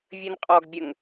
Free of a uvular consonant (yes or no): no